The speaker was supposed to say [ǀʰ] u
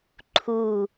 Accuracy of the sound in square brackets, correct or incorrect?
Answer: incorrect